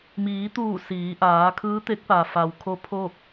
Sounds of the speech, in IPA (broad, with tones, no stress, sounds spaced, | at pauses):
m iː˩˧ t̪ uː˧˩ s iː˩˧ ʔ aː˩˧ kʰ ɯː˧˥ t̪ e˧˥ k̚ p a˩ f a˩ w kʰ o˧˥ pʰ o˥˨ k̚